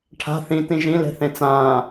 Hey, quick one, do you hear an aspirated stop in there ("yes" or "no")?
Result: yes